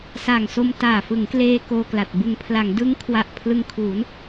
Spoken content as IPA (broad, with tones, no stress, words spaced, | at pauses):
sa˨˩ŋso˧m taː˨˩ fɯ˩˦ŋkleː˧ koː˧kla˨˩t̚ bɯ˨˩ŋpʰla˩˦ŋ dɯ˦˥ŋkʰwa˨˩ʔ pʰlɯ˧ŋkʰuː˩˦n